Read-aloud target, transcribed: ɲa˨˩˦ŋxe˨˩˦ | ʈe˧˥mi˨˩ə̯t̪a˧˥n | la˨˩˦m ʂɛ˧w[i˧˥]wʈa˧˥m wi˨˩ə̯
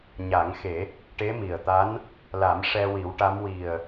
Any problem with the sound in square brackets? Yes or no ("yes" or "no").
yes